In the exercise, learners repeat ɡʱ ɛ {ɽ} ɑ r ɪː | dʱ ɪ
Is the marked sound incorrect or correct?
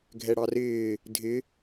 correct